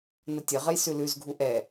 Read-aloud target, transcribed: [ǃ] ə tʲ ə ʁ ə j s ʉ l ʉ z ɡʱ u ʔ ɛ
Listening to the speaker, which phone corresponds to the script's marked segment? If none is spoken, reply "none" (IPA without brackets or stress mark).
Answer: n